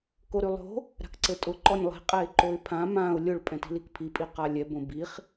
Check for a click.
present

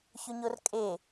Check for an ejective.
present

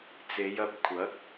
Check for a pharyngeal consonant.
absent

